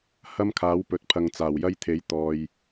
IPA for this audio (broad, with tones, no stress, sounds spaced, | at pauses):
h ɐ˥ m kʰ aː˨˥ w p ɵ˨ t̚ pʰ ɐ˨ ŋ t͡s aː˨˩ w j ɐ˥ j t̪ʰ e˨˥ j t̪ ɔː˨ j